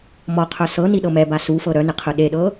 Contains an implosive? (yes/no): yes